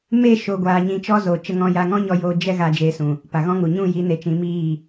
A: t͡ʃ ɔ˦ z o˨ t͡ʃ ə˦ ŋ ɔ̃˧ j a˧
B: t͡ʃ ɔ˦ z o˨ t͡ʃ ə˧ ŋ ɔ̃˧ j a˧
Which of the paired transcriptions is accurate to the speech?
B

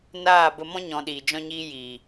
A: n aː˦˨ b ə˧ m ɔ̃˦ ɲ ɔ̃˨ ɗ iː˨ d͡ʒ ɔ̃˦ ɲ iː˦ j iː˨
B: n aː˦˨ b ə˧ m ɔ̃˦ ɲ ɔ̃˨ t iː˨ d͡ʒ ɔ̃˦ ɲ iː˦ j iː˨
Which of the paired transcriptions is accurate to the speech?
A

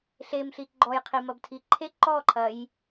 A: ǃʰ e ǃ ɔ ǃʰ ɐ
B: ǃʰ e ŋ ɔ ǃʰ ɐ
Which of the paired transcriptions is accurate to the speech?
A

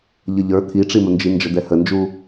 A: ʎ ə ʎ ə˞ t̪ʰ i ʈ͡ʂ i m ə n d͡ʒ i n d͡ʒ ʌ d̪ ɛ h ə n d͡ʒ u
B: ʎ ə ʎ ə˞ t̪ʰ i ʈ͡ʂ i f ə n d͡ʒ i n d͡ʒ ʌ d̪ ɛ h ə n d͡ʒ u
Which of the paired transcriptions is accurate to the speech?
A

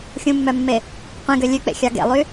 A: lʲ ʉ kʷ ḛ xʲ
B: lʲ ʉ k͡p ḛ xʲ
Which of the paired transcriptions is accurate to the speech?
B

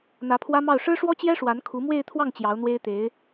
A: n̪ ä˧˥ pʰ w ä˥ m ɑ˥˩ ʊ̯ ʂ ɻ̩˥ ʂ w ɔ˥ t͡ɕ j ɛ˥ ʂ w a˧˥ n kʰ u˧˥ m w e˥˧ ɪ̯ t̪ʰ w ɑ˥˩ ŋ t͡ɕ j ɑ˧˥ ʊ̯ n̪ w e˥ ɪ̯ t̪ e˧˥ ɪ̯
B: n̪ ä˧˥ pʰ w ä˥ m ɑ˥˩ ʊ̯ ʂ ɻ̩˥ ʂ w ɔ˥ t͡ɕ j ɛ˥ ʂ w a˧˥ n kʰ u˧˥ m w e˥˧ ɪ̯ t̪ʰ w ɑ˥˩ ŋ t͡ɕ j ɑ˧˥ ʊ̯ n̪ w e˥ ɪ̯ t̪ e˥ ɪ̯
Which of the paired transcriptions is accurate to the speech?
A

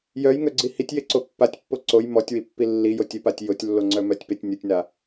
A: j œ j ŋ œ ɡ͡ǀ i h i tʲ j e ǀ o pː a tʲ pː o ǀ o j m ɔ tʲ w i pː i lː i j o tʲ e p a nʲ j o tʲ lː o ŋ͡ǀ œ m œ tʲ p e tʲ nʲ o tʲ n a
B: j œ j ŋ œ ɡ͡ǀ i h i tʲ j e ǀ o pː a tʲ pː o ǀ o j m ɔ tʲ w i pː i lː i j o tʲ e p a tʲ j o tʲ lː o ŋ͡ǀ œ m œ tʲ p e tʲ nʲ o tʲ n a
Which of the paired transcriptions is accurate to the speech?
B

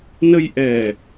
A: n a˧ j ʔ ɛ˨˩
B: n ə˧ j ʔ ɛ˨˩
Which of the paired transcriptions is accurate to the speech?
B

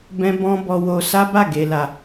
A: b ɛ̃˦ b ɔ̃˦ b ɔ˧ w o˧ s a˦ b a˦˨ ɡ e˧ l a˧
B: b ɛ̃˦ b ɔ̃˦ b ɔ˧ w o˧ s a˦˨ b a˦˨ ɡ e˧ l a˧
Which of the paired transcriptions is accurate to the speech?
A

